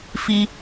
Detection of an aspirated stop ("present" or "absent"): absent